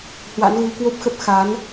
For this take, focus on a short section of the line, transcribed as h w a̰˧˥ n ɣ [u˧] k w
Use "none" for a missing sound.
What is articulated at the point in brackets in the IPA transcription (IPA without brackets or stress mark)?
u˧